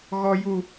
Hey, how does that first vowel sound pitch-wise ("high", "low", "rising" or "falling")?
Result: high